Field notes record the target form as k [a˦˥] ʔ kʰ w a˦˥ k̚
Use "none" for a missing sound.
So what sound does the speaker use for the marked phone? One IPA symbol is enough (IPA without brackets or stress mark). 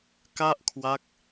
a˥˩